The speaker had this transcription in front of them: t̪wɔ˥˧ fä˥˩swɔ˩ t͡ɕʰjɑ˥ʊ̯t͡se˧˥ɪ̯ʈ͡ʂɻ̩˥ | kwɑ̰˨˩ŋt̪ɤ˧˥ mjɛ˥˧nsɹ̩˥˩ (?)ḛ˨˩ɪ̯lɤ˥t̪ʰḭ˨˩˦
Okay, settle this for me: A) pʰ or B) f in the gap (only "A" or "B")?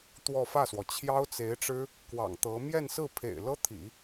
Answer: A